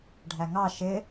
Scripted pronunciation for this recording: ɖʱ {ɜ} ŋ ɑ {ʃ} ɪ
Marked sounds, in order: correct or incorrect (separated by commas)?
incorrect, correct